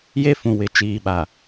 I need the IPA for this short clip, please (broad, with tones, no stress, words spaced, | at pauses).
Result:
je˦fũ˨ wɪ˨ t͡ʃiː˨ɓa˨